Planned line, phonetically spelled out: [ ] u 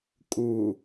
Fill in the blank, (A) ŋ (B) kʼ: B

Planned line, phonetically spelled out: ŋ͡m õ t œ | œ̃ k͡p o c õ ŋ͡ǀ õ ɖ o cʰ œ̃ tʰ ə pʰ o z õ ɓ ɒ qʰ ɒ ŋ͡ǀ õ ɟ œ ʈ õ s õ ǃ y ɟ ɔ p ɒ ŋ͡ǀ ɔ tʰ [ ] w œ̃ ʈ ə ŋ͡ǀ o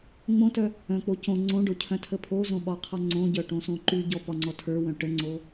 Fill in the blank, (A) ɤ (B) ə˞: B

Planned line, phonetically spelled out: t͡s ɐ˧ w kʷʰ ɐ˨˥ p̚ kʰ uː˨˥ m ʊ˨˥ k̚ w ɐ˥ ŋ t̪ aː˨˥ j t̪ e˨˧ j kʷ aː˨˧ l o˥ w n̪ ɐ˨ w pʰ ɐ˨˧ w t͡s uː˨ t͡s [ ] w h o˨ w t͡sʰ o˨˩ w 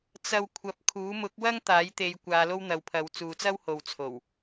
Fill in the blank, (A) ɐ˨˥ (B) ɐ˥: B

